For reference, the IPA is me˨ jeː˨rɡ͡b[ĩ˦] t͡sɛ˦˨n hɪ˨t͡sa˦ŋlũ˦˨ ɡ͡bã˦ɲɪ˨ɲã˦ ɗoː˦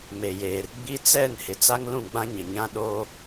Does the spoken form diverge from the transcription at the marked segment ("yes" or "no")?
yes